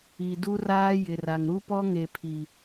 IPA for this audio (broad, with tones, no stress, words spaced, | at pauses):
i˨du˦raː˦ jɪ˨ra˨ŋ ɾu˦pɔ˦ŋe˨pʰi˨